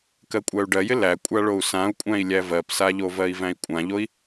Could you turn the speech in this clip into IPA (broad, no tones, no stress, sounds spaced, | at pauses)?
k ɜ kʷʼ æ u̯ ɖ ɜ j ɪ l æ kʷʼ a ɭ o u̯ s ã u̯ kʷʼ æ̃ i̯ lʲ æ v ɜ p s a ʎ o v ɜ i̯ v æ̃ i̯ kʷʼ ã ʎ o i̯